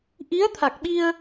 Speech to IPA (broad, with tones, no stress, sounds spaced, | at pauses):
ʔ i˧˥ ə̯ t̪ʰ a˨˩ k̚ ɓ i˧ ə̯